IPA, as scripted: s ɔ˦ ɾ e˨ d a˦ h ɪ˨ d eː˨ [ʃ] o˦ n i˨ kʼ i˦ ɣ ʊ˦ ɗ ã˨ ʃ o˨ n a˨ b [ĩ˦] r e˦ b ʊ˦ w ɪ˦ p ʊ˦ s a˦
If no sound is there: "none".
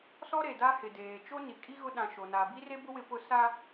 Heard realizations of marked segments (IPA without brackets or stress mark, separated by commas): t͡ʃ, i˦